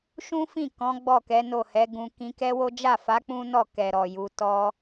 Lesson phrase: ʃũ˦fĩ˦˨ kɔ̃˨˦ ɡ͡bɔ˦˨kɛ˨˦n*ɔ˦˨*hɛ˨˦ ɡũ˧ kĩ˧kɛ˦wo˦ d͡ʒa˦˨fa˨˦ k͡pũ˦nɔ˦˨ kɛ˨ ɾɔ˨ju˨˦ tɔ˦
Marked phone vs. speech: incorrect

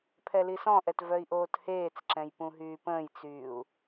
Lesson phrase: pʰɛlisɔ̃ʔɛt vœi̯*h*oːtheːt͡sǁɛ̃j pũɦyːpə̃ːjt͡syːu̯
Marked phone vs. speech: incorrect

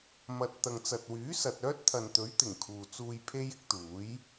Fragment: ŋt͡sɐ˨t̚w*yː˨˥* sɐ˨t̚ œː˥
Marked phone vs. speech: correct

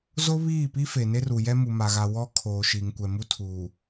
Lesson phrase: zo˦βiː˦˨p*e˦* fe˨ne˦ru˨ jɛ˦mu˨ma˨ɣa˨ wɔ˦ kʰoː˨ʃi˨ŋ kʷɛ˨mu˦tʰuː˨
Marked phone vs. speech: incorrect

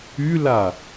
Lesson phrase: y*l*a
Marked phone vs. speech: correct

